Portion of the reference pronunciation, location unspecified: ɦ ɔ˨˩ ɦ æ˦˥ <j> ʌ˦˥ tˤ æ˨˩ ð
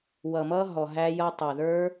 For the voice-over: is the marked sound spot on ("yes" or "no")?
yes